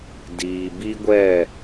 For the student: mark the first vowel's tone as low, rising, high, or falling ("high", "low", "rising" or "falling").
low